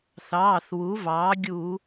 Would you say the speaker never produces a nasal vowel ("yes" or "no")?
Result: yes